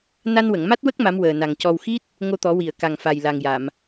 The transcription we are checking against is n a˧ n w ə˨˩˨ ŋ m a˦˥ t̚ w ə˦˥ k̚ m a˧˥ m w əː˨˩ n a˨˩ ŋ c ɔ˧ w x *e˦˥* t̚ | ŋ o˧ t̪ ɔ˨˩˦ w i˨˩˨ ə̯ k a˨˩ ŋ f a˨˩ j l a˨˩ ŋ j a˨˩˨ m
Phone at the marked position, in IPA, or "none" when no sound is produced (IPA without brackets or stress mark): i˦˥